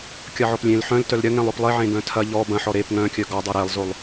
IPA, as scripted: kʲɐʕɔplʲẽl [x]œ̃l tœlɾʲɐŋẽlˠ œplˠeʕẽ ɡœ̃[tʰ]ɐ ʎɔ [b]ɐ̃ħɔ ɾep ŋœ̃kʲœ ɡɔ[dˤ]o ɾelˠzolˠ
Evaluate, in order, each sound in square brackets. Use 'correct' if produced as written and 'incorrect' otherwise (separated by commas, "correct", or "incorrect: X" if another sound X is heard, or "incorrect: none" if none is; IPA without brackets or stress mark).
incorrect: ħ, correct, correct, correct